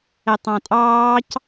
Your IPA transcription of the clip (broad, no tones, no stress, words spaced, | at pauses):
ɛtˤɑ̃tʼɑːc